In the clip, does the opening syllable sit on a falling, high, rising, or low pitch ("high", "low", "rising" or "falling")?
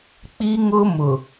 high